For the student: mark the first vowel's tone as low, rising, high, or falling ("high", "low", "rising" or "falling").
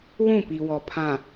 falling